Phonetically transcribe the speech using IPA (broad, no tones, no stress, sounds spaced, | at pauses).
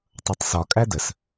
tˤ ʌ tˤ s ɒ kʼ æ d ə s